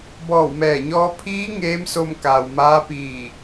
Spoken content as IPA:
bɔː˧˩wmɛː˧˩ɲɔː˧ pʰiː˧˥ ŋeː˧˥mso˧mkaː˩w maː˧˥piː˧˩

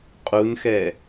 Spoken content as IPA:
qʼunxɛ

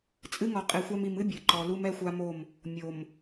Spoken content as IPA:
t͡sʼɨ˦ŋɔ˨qʼi˨xʷa˦m i˨mɨ˦ bʲɨ˨ǃɔ˦ lu˦mɛ˦xʷa˦mo˦˨m | mʲo˨m

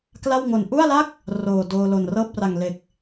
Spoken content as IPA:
kla˥˩wŋo˨˩n ʔu˥˩a̯la˥˩k̚ | roː˨˩ doː˧lo˨˩n rɤː˥˩p̚ra˨˩ŋle˨˩k̚

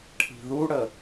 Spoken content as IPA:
ʈʰi̤ðuɽə

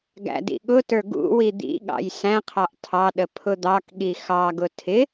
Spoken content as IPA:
ɡæ̰dḭɠʊtə˞ ɡṵ wid̪ḭɠɑ̰j sæ̃qʰɑʔ tʰɑɗə pʰʊd̪ɑkɠi xɑɡʊ tʰɪ

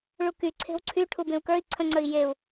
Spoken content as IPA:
ɭuky ǀʰe̤wǀʰy ʈʰubẽu̯kə˞i̯ ǀʰə̃ŋ͡ǀəi̯ jeu̯

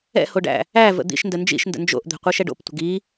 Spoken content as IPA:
ɛ̰hoɖæ̰ | æ və̰d̪ḭʃndə nd͡ʒḭʃndə̰ nd͡ʒo̰ʔd̪ɛ̤ qʷiʃɛɖo̰ptʷə̤ɡ i

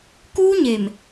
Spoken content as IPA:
kuː˦ɲe˨m

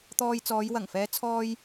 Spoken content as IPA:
t̪ɔː˧jt͡sɔː˨˧j wɐ˨˩ŋfɛː˨˧ t͡sʰɔː˧j

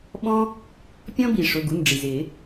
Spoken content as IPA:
ɓɔ̃˦ | pʲɔ̃˦bi˩ ʂʊ˩˧˩ɡu˩˧˩nɖ͡ʐi˩zɪː˨˩˦

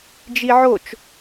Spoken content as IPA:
d͡ʒiʕot͡ʃ

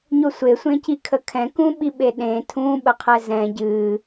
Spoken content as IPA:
ɲosʷesʷẽci kʰəkʰɛ̃kũɓi ɓeɗẽ tʰũɓəqʰɛ zɛ̃ ɟɨ

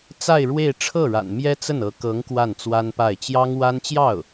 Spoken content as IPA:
t͡sa˥˧ɪ̯ɻwe˥˧ɪ̯ ʈ͡ʂʰɤ˥˩ɻa̰˨˩nmjɛ˥ t͡sə˥˩nɤ˧˥kɤ˧˥ŋ kwa˥˩nt͡swa˥npa˥˩ɪ̯ t͡ɕjɑ˥ŋwa˥n t͡ɕjɑ˥˩ʊ̯

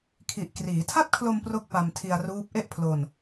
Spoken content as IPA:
kʰi˨˩ʔkriː˩˦ tʰa˥˩t̚kʰlo˧m pro˥˩k̚pa˧mtʰi˧a̯ruː˦˥p̚ ʔe˥˩ʔpʰlo˧n

